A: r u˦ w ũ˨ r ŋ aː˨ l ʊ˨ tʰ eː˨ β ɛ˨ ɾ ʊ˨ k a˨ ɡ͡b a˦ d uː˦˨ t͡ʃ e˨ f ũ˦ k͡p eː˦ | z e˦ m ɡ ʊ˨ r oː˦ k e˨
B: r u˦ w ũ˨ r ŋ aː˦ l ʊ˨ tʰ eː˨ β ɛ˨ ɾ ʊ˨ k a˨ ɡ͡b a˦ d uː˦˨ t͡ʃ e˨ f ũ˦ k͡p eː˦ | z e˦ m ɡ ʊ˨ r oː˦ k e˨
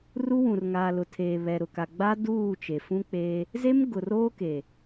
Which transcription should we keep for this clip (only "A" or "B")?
A